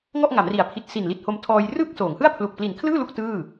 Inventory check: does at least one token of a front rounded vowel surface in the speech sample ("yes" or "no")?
no